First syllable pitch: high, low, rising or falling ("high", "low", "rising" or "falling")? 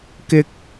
high